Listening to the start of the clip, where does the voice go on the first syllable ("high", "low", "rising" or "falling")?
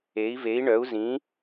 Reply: rising